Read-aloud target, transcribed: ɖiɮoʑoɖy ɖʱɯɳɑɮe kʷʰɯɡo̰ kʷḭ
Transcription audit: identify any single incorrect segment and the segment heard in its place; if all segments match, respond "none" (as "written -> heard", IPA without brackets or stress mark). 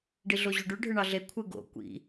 none